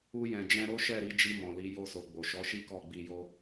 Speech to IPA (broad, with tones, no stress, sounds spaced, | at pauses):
u˧ j ɛ̃˨ d͡ʒ ɛ̃˧ ɾ o˦ ʃ ɛ˦˨ ɾ i˨˦ d͡ʒ i˧ m ɔ̃˨ l i˨˦ j o˧ s o˨ ɡ͡b o˨ ʃ ɔ˨˦ ʃ i˦ k ɔ˦˨ ɡ͡b i˧ j o˦